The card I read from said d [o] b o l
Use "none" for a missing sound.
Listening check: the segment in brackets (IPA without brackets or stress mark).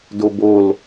o